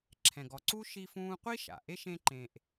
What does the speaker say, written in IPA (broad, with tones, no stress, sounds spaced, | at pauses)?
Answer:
ǁʰ ɛ̃˨ ɡ ɔ˨ ǀ u˥ ʃ i˦ f ũː˦ qʷ i˥ ʃ a̰˩ ʔ e˥ ʃ ẽ˦ ǃ ẽ˨ ʔ